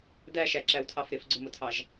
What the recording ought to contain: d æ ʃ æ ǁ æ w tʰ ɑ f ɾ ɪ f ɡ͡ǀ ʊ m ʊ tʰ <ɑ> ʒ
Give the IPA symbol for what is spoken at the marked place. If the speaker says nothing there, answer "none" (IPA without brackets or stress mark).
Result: ɑ